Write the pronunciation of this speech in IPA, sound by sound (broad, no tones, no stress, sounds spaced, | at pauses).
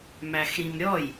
m æ x ɾ ĩ m ɾʲ ɔ j